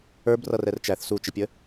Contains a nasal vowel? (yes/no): no